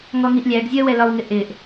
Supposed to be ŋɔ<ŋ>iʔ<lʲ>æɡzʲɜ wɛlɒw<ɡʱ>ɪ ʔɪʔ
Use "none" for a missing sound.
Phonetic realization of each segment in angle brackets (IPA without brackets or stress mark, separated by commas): ŋ, lʲ, ŋ